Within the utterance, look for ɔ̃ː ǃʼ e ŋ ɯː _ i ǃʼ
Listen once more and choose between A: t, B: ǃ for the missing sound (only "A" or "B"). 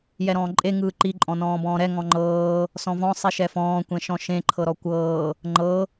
B